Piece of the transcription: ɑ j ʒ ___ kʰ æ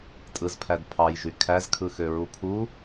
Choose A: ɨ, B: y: B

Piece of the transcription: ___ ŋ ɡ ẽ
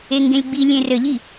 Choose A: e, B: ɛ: A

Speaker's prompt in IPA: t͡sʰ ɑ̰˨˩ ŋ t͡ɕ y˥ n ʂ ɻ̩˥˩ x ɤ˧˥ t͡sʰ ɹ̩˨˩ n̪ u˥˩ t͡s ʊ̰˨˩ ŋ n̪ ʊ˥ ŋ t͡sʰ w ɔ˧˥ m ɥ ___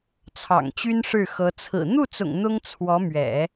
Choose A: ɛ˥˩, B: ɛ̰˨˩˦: B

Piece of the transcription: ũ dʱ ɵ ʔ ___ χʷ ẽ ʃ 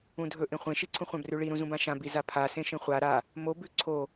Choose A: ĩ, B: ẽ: B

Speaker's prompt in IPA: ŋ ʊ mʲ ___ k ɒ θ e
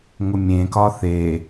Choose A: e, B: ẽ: B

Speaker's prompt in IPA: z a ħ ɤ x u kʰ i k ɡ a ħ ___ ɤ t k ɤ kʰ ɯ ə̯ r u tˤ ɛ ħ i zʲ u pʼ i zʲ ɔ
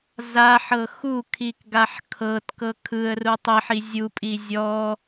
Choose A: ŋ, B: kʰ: B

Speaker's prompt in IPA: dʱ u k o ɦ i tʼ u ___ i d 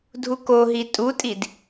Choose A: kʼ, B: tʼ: B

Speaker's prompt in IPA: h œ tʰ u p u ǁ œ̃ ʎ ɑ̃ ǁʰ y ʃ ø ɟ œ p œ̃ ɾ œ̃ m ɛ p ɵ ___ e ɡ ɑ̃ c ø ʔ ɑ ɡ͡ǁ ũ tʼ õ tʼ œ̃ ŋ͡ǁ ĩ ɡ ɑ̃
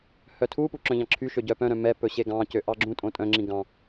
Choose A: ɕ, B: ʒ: A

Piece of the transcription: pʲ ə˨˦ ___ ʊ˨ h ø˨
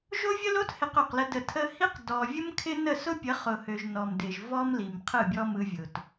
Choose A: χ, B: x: A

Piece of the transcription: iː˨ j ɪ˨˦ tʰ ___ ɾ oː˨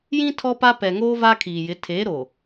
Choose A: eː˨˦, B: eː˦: A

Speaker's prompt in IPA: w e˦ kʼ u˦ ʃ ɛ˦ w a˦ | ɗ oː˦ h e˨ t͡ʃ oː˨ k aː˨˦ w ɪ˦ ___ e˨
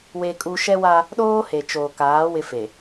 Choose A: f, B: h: A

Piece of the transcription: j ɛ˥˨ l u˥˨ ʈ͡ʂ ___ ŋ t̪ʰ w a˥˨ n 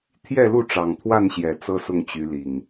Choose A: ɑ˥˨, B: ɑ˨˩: B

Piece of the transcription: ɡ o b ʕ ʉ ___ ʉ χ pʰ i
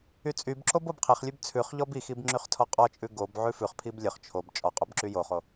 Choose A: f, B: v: A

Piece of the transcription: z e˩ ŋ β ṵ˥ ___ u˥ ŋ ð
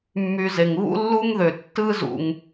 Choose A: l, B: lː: B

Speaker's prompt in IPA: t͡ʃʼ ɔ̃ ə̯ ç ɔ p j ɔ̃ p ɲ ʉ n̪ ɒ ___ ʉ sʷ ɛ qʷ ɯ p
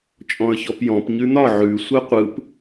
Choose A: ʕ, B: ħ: A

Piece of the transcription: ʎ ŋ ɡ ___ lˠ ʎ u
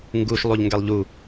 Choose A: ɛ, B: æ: A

